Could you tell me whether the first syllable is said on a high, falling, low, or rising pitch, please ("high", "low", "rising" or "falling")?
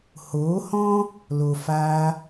rising